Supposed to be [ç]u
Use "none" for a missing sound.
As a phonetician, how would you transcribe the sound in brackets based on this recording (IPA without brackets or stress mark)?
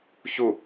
ç